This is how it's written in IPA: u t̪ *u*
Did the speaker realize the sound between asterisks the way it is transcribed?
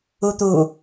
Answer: yes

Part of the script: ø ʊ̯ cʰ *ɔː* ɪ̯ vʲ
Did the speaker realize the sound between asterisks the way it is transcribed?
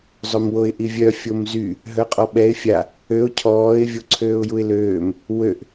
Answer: yes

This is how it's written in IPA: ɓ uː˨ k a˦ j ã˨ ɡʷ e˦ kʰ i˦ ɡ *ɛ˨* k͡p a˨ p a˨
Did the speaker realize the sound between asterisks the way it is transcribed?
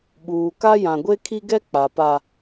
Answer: no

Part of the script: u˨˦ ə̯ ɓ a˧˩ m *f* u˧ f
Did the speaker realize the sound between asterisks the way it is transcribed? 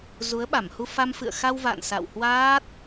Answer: no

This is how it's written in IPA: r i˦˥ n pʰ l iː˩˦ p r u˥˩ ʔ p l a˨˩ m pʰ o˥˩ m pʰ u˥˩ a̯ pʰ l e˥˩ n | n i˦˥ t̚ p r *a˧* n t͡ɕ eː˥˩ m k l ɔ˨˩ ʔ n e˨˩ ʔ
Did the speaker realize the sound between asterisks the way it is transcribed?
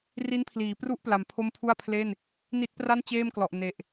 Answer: no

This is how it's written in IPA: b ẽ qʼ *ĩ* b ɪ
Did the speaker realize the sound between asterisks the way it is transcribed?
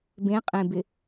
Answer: no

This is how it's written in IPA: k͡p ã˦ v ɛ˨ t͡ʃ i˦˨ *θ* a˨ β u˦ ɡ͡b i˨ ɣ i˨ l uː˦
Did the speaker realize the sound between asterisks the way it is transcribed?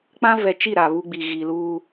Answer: no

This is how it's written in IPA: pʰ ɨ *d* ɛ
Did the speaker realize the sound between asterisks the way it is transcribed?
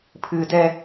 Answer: yes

